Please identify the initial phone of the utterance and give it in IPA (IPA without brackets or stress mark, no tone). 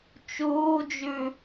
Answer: t͡ʃ